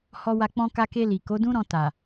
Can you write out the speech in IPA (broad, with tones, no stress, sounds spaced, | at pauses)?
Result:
h ɔ˧ w a˧ k͡p ɔ̃˧ k a˧ k e˧ l i˨ k o˨˦ d ũ˦ ɾ ɔ̃˧ t a˨